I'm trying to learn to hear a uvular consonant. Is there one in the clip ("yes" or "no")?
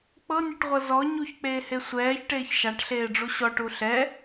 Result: yes